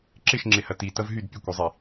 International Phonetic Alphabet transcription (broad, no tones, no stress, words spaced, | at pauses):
ǁɪʃŋ͡ǁɪhɐ titɐv ɦyd pʲəkʷɐzˤi